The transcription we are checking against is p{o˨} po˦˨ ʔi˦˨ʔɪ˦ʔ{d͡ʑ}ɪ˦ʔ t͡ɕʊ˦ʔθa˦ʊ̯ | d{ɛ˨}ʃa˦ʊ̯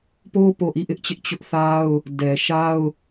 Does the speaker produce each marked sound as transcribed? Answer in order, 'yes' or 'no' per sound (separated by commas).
no, no, yes